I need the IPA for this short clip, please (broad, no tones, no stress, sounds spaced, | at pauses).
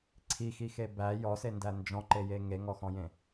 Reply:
ǀʰ i x i x e b æ j ɔ s e n d æ n d͡ʒ ɔ̃ ǃ e j e ŋ e ŋ ɔ x ɔ̃ j ẽ